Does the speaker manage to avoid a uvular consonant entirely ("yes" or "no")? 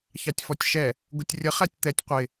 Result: no